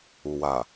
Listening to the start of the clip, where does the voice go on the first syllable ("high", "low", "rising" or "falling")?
low